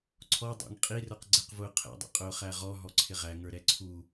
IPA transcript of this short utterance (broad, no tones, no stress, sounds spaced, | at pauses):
ǀʰ ɔ dˤ æ̰ ŋ qʼ i r ə˞ q ɡ͡ǀ ɪ q v ʊː qʰ ɛ̰ dˤ ɛ̰ qʼ ʊː χ æ ʁ ɔ ɦ ɔ ǀʰ ɪ ʁ æ ŋ ə˞ ɾ ɛ ǀʰ u